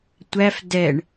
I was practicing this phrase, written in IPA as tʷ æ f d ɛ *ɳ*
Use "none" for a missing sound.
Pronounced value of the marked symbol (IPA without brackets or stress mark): ɳ